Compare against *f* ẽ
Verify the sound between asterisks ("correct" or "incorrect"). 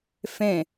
correct